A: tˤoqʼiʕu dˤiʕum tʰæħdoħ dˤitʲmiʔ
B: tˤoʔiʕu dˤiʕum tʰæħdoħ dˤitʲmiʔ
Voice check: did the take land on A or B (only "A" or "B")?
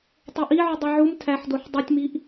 B